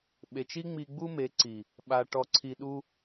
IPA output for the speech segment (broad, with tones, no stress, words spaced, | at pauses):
ɓe˨t͡ʃ i˦ŋ͡mi˧ ɡ͡bu˦me˨˦ǀi˨ | ɓa˨ ʈɔ˧ǀʰi˧ ɗu˧